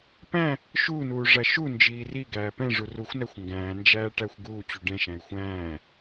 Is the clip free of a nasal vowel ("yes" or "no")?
no